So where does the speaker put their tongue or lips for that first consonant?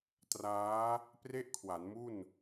tongue tip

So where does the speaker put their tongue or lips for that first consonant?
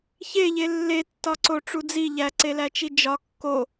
palate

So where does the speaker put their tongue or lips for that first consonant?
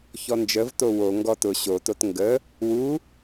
palate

